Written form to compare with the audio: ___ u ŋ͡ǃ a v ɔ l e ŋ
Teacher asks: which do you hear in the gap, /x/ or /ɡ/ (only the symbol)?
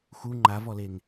x